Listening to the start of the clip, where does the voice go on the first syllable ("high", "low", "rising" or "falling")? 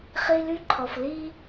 high